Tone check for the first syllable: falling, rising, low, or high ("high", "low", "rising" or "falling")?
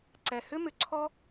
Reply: low